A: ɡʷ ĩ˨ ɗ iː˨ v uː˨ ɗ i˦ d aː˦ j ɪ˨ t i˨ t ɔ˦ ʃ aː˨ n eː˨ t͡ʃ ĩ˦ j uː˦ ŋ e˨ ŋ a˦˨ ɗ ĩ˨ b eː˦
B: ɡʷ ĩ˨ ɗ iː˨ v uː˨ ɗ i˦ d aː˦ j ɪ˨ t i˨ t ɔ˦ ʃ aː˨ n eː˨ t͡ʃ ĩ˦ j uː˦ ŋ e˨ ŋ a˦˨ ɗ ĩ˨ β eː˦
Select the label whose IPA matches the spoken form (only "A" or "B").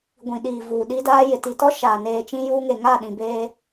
A